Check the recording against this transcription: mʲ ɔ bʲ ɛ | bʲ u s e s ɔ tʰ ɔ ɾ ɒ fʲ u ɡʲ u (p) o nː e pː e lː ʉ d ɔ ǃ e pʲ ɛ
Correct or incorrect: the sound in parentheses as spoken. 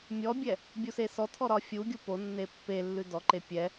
correct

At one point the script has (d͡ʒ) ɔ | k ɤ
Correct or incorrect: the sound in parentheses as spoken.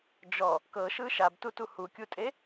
correct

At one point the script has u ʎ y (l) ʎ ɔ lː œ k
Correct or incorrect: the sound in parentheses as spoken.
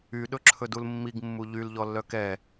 correct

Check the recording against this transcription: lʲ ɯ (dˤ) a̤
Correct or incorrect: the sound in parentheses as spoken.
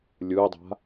correct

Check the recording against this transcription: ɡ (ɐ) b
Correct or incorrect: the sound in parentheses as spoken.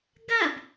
correct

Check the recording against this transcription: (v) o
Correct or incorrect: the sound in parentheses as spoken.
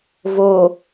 correct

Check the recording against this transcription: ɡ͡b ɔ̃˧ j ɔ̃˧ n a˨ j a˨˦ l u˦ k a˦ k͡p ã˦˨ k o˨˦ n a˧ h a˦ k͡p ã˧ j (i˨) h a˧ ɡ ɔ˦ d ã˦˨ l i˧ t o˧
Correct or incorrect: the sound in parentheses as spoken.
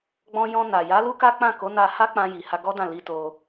correct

